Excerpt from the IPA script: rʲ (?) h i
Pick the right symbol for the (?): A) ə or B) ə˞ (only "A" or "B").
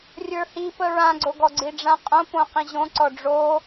B